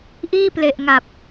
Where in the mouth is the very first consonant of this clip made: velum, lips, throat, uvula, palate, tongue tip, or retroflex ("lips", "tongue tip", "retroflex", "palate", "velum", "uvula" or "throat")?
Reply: throat